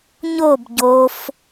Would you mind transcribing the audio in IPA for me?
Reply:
ɲ o b ɟ o f

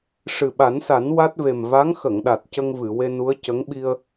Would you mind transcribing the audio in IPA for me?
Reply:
ʂ ɨ˨˩ ɓ a˨˩˦ n s a˨˩˦ n w a˦˥ t̚ v e˨˩ m v a˧˥ ŋ x ə˨˩˨ ŋ ɗ a˨˩ t̚ c ə˧ ŋ v ɨ˨˩˨ w e˧ n u˧˥ ə̯ c ə˧˥ ŋ ɓ i˧ ə̯

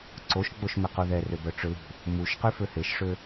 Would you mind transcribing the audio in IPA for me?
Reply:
ǀ o ʃ ɡ͡b o ʃ m ɪ q u ð ɛ r ø b œ ʈ͡ʂ ʏ l ṳ | m u ʃ q y f ø h e ʃ ʂ ø

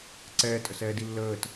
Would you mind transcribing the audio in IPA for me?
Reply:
ǀ ɛː tʼ ə s ɛː d i lː əː t

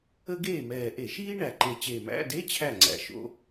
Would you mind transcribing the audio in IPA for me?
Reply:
ə˥ ɡ eː˥˩ m ɛː˨˩ ʔ e˧˩˧ ʃ iː˥ ɳ æ˨˩ ǃ e˨˩ t͡ɕ e˨˩ m æ̰˧˥˧ d e˧˥˧ t͡ɕʰ æ˥˩ ŋ͡ǀ æ̰˨˦ ʃ o̰˧˥˧

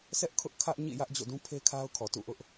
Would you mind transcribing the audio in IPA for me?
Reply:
sʰ ɛ˦ ʔ kʰ ʊ˦ ʔ kʰ ä˦ ʔ ɲ ḭ˦˨ j ä˦ ʔ d͡ʑ o̰˦˨ d ũ˦ pʰ e˦ kʰ a˦ ʊ̯ kʰ ɔ˨ t ṵ˦˨ ʔ ʊ˦ ʔ

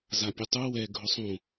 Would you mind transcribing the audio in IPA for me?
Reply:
z a pʲ u tˤ u w ɛ ɡʱ ʊ sˤ ũ

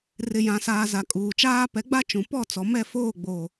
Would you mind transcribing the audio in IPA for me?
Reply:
r ɪ˨ j ã˨ s aː˨ z a˨ kʼ uː˨ t͡ʃ aː˦ p ɛ˨˦ ɡ͡b a˦ t͡ʃ ũ˨ p ɔ˦˨ t͡s ɔ˨ m ɛ˦˨ f oː˦˨ ɡ͡b oː˨

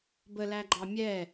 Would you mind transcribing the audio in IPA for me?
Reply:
b ə l æ ɡ͡ǃ ɑ mʲ ɛ

